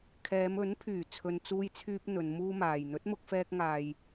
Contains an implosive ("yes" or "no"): no